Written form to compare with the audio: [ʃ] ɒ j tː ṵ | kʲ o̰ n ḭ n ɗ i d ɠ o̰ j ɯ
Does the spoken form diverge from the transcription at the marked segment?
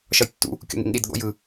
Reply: no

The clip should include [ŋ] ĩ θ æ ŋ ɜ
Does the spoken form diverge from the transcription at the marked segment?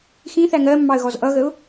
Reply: yes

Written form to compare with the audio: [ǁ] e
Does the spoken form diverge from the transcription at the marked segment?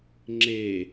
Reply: yes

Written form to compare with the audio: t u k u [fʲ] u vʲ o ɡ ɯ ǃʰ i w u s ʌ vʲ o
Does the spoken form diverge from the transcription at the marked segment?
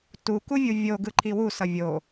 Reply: yes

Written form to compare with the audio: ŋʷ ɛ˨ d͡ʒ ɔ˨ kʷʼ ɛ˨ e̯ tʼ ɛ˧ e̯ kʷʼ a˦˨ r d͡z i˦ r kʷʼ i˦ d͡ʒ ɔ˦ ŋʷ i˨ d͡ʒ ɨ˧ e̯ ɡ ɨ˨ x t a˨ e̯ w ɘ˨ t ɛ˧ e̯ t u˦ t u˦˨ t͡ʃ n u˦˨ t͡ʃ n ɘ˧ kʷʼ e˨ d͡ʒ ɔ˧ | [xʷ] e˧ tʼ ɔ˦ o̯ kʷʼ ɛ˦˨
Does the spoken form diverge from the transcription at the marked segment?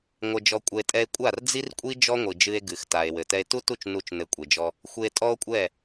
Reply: no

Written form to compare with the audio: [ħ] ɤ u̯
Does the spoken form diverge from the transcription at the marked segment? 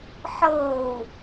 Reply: no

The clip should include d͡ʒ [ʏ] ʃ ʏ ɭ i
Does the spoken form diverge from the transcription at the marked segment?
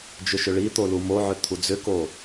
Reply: no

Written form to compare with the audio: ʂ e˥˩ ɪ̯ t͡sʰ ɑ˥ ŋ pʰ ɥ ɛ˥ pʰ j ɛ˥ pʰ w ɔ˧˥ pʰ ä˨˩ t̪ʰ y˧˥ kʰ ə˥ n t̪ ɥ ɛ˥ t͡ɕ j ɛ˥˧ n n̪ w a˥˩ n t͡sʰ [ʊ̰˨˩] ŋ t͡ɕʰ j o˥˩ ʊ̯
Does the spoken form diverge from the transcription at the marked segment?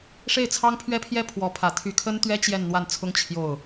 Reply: yes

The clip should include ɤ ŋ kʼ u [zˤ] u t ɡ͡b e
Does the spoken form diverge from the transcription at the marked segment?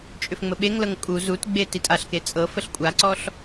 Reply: yes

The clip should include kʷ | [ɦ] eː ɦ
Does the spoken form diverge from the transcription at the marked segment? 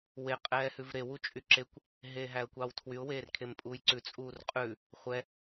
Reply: no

